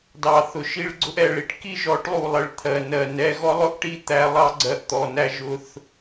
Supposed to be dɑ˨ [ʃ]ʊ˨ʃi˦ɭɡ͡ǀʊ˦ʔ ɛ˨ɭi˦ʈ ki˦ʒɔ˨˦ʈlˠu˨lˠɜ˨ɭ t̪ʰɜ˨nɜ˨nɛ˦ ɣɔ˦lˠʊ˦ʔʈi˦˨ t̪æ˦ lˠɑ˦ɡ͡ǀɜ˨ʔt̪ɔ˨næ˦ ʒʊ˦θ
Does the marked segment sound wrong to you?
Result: yes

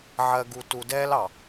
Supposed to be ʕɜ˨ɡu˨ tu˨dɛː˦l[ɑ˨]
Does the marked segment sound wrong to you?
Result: no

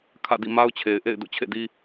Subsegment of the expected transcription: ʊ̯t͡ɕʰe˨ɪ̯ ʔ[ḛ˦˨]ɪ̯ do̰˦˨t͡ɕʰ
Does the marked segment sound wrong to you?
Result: no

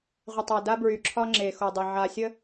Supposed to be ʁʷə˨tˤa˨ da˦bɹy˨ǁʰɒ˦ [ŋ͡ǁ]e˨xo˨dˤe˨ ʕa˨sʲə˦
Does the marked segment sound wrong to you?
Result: no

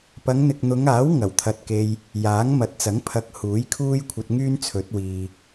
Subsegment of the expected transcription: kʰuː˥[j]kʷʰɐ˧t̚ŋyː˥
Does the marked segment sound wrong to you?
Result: no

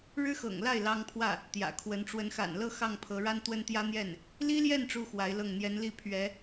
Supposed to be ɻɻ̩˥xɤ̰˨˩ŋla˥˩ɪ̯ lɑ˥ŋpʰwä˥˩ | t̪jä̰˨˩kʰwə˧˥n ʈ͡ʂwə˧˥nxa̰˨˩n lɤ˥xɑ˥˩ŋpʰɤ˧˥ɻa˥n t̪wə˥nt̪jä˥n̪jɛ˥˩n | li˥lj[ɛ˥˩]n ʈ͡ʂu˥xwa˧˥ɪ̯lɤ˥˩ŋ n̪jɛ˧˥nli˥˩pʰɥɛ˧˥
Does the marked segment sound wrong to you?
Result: no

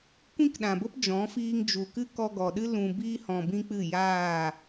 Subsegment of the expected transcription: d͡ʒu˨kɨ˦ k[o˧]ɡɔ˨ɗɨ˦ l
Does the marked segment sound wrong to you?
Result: yes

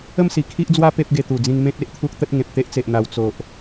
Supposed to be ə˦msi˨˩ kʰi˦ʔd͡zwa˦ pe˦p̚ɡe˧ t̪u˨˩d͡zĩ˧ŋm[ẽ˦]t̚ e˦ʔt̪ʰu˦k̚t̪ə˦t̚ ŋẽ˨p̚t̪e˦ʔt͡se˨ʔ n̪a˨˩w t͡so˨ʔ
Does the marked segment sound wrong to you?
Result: no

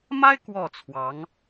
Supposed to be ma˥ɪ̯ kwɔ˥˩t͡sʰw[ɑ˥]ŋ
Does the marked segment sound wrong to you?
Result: yes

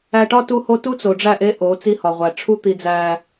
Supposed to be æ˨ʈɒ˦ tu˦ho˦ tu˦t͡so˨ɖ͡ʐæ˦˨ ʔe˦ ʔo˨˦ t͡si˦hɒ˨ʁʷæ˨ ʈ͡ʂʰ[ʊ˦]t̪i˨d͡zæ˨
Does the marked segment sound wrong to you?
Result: yes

